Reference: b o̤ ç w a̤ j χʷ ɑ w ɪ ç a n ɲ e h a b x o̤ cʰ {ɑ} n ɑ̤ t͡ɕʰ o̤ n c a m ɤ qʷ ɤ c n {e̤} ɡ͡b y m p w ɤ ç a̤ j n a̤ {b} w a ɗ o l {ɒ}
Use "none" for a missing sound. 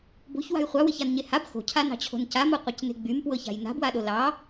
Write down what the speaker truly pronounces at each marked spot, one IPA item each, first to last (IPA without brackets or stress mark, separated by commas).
a, e̤, b, ɑ